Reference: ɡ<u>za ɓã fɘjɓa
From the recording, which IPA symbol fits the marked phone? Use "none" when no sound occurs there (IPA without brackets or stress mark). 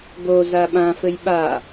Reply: o